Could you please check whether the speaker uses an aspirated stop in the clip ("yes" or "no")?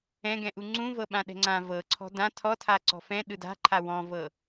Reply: yes